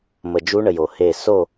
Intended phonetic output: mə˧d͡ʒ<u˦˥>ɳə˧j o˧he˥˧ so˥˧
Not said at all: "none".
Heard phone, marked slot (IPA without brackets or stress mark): u˦˥